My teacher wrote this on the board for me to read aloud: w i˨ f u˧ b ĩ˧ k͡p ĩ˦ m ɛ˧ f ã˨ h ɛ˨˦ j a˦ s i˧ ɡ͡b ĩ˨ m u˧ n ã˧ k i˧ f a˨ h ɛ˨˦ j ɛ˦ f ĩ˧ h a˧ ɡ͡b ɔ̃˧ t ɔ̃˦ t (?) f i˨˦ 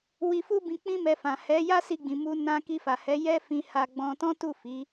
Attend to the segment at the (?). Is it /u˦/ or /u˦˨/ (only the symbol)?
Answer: u˦˨